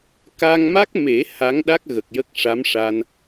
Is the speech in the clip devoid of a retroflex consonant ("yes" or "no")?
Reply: no